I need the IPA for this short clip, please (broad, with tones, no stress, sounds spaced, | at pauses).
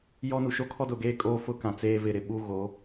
j ɔ˦ n u˨ ʃ o˦ kʰ ɔ˦ d ʊ˨ ɡ eː˦ kʼ oː˦ f ʊ˦ k ã˨ t͡s eː˦ v ɪ˨ ɾ ɪ˨ ɓ uː˦ ɣ o˨˦